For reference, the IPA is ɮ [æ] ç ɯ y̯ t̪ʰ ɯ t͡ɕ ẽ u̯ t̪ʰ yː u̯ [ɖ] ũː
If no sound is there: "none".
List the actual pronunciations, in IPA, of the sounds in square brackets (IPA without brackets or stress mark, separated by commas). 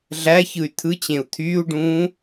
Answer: æ, ɖ